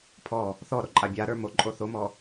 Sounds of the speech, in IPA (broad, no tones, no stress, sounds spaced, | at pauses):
pʰ ɔ | θ ɔ ɾ o ǃʼ a bʲ a ɾ ə˞ m o ǃʼ o θ o m ɔ